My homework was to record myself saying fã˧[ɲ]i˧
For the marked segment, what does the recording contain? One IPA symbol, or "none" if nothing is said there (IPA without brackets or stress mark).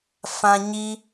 ɲ